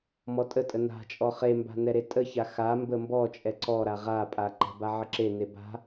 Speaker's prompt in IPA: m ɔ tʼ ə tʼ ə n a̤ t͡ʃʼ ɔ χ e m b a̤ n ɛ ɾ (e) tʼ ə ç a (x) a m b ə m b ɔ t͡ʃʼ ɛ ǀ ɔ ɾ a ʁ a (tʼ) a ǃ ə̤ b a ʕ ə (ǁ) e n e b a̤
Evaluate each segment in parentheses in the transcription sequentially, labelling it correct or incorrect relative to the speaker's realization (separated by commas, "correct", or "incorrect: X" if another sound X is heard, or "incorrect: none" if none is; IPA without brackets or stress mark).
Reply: correct, correct, incorrect: pʼ, correct